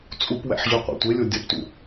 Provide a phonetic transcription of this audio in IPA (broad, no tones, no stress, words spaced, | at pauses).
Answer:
t͡sʼupwæ̰ħ ʑuqʷæ̰tʷelʲo dʲɒptṵ